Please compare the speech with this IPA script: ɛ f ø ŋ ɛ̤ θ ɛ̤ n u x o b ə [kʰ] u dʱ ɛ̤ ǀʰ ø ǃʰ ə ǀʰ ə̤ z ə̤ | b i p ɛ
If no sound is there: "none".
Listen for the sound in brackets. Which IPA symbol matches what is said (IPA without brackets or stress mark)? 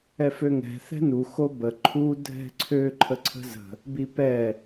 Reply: ǃʰ